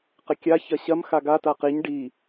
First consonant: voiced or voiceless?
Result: voiceless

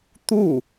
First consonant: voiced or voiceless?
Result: voiceless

